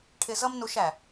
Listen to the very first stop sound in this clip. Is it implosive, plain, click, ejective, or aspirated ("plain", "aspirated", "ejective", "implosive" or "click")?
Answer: aspirated